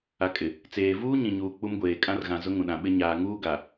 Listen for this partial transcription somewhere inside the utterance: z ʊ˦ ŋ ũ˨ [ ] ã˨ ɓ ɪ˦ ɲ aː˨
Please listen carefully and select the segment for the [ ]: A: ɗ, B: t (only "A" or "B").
A